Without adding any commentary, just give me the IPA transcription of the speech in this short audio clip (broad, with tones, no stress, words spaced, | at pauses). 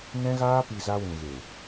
nɛ̃˧ɣaː˧pi˨ za˧wũ˨ɣe˨